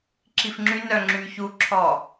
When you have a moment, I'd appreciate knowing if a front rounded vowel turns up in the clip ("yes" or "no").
yes